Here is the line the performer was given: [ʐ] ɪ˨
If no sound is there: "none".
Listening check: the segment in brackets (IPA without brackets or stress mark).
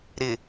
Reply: ɾ